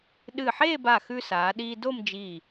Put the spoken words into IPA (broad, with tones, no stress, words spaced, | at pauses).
ɗɨ˧˩ħeː˥˧ba˧˩xʉ˧ saː˩˧ɗiː˧do˥˧md͡ʒiː˧˩